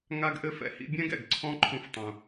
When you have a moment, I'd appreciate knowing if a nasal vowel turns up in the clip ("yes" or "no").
yes